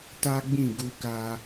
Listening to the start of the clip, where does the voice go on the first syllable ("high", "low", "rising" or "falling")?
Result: high